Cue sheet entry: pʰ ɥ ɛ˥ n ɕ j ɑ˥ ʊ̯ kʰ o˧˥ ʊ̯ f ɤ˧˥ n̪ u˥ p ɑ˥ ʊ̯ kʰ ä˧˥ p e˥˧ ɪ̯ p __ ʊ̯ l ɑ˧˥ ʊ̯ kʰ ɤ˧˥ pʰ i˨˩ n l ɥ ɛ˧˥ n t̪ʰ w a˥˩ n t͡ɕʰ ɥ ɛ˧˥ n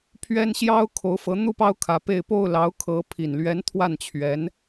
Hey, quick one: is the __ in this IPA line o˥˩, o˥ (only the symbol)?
o˥˩